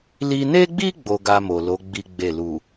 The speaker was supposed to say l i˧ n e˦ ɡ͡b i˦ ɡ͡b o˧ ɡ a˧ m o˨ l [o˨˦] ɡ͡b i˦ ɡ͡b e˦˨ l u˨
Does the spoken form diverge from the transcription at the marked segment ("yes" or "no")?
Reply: no